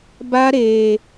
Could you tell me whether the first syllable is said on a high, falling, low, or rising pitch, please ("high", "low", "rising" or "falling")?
high